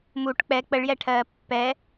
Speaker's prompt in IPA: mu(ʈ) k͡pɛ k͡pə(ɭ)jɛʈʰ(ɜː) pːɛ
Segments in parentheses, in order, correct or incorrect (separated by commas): correct, correct, correct